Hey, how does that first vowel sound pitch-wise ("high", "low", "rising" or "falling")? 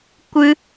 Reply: high